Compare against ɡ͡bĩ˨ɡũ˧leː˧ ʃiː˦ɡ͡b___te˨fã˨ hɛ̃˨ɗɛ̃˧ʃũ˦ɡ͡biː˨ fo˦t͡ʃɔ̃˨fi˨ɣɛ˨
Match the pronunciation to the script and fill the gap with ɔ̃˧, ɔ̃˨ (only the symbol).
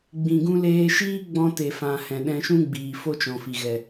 ɔ̃˧